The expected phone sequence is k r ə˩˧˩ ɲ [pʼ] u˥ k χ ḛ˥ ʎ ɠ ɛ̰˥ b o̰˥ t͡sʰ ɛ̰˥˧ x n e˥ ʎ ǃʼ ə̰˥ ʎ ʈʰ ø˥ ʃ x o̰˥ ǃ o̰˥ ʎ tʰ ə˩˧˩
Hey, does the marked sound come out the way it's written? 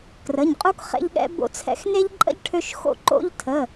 no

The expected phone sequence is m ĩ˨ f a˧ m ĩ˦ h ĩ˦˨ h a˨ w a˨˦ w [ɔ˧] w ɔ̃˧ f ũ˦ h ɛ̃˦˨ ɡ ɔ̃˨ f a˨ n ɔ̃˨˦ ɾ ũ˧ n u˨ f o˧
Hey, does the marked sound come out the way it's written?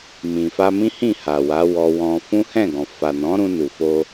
yes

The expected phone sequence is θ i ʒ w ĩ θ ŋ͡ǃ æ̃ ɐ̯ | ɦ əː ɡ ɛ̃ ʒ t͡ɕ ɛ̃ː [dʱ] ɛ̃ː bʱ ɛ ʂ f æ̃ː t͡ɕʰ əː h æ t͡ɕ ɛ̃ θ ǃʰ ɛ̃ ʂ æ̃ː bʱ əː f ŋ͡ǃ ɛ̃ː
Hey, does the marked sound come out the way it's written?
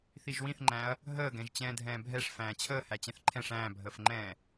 yes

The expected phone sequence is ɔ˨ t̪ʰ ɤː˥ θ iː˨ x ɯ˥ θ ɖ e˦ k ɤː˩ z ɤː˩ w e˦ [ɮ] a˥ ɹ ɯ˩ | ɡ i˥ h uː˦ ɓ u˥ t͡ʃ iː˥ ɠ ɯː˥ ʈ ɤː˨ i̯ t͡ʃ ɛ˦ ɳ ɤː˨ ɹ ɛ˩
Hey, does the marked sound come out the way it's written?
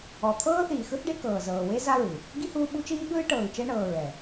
no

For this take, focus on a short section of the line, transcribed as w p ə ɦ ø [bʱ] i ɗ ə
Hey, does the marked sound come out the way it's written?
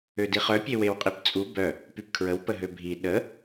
yes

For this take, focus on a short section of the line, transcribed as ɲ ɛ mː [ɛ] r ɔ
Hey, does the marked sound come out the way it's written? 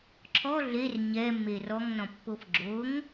no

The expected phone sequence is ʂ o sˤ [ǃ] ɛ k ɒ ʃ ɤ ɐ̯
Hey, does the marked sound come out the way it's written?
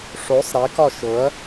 no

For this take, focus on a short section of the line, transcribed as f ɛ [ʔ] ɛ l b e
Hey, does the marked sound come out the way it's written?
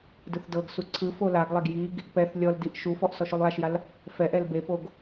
yes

